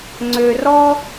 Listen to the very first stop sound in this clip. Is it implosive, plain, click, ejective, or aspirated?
click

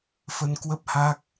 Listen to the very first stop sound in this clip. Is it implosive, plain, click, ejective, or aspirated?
plain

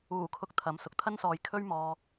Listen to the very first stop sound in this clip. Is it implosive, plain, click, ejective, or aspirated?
aspirated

